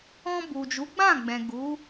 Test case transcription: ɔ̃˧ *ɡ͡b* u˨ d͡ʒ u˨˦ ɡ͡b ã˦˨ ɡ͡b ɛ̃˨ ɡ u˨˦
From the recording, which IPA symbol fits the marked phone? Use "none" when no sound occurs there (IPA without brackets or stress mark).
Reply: b